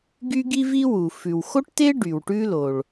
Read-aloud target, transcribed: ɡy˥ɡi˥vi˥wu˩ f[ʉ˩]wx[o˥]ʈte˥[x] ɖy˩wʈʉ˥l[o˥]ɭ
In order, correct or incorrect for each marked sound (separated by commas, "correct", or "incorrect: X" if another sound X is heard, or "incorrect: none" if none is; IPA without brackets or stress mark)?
correct, correct, incorrect: none, incorrect: o˩